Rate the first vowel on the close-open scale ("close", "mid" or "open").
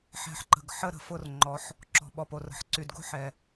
mid